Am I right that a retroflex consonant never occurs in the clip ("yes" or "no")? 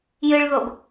no